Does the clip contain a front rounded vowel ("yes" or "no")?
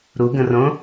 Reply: no